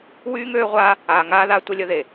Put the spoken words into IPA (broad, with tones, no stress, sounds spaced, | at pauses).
w yː˦ ŋ øː˦ ʁʷ aː˦ | aː˨ ŋ aː˦ ð a˦ tʷ ə˦ lʲ ə˦ ð e˨